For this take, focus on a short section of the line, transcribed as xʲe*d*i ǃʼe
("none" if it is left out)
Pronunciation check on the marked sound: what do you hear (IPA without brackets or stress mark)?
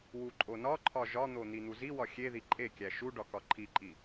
ð